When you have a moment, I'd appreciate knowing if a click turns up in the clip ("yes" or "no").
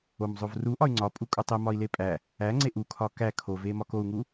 yes